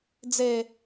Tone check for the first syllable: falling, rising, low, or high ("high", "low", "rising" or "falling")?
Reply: low